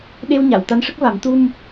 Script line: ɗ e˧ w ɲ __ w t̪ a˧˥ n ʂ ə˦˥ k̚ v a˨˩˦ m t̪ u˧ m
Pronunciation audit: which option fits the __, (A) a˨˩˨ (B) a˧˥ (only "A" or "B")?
A